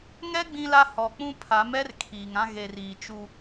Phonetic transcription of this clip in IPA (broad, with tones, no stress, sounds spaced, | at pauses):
ŋ ɛ˦ ɡ͡b ĩ˦ l a˦ h ɔ˨ k͡p ũ˦ pʰ a˨˦ m ɛ˦ r kʰ iː˨ ŋ ã˦ ɣ e˨ r iː˨ t͡ʃ u˦